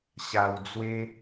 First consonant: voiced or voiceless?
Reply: voiceless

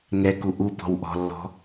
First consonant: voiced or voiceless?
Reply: voiced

